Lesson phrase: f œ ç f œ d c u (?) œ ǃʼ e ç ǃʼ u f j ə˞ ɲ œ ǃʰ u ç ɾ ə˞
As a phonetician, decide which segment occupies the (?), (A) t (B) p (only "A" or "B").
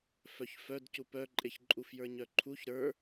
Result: B